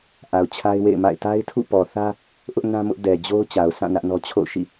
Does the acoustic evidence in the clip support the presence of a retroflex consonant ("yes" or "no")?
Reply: no